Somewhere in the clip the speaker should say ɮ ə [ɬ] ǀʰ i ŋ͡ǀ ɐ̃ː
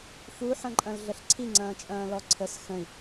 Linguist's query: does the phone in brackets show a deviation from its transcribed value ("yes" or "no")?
no